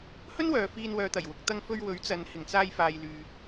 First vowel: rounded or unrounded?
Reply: rounded